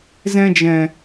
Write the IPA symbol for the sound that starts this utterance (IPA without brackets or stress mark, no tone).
z